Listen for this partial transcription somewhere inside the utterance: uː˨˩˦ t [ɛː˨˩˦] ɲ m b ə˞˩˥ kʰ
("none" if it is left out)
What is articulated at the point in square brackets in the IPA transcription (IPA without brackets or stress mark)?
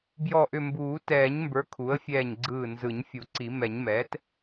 ɛː˨˩˦